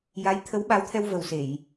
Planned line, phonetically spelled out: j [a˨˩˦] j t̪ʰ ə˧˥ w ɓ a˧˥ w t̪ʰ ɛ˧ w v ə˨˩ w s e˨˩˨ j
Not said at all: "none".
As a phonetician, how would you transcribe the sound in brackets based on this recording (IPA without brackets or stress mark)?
a˧˥